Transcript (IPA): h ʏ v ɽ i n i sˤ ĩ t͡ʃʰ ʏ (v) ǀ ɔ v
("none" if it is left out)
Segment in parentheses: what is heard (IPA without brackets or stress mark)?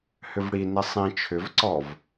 v